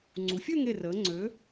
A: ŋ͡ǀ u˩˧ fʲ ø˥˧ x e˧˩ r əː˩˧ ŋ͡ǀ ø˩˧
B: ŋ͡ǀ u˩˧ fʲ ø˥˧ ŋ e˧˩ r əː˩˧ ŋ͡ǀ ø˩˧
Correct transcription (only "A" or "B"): B